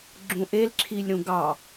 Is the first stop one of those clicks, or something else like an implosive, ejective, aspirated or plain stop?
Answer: click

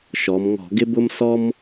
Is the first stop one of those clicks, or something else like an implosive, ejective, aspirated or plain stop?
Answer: plain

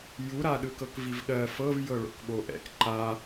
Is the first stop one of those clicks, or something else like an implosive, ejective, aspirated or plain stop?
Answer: implosive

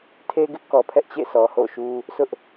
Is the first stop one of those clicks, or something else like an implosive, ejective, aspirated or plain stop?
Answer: aspirated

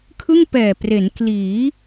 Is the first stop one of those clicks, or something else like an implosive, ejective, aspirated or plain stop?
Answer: aspirated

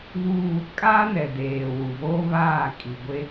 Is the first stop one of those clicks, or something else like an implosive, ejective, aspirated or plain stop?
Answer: ejective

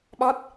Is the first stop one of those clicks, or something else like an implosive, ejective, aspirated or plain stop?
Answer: implosive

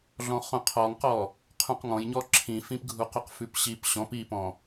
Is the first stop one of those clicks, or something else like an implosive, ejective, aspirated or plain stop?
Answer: aspirated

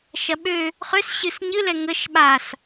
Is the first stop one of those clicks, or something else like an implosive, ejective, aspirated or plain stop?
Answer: implosive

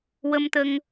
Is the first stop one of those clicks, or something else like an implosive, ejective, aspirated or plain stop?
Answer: plain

